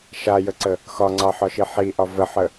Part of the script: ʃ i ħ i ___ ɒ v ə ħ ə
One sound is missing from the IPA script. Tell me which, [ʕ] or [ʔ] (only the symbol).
ʔ